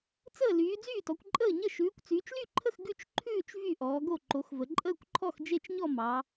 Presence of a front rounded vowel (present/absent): present